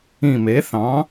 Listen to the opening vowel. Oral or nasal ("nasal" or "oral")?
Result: nasal